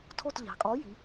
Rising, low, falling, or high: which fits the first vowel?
falling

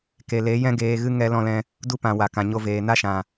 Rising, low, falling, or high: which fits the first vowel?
low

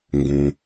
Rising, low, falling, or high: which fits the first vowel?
low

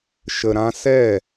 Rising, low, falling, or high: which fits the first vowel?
low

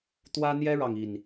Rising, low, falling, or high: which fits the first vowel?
high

